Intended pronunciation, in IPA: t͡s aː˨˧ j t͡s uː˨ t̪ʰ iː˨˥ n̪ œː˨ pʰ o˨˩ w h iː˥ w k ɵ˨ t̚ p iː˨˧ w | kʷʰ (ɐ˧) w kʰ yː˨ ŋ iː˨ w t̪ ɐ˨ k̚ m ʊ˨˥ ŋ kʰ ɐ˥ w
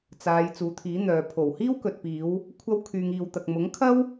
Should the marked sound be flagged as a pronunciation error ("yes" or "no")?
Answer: no